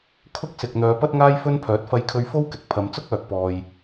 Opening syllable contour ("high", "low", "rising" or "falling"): high